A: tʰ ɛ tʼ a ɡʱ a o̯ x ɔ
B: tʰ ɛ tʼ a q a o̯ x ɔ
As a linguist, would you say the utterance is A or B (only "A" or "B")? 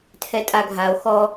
A